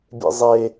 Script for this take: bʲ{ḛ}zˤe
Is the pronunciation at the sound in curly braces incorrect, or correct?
correct